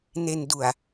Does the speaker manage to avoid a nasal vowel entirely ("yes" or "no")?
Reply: yes